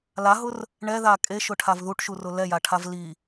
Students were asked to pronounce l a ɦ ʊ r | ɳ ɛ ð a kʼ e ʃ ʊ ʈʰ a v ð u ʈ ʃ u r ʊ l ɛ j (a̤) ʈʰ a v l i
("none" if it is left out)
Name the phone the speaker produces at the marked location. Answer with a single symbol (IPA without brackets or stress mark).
a